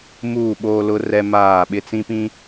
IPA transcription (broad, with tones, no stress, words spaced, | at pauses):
muː˦˨ɓoː˦lʊ˦ rɛ˦maː˦˨ ɓɪ˦t͡sĩ˦pĩ˦